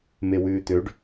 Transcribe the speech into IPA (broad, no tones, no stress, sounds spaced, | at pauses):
m e w ʉː t̪ ø ɖ